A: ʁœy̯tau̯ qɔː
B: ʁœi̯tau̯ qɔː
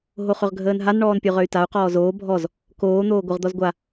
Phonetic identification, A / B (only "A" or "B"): A